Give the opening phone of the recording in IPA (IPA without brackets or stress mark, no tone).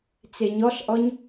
t͡s